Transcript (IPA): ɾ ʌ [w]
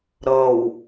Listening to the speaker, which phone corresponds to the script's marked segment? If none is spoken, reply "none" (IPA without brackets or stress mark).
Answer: w